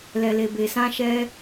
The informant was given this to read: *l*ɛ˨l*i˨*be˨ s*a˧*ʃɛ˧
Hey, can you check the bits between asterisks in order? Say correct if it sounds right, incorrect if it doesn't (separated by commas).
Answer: correct, incorrect, incorrect